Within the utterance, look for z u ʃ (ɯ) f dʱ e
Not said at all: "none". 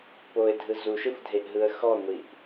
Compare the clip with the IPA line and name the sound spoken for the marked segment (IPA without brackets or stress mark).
ɯ